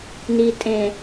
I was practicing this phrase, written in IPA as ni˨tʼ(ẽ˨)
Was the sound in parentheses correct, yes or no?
yes